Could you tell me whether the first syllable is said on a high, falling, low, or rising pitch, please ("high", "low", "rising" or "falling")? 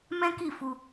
high